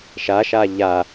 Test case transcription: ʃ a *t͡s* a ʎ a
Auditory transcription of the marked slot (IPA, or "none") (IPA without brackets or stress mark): ʃ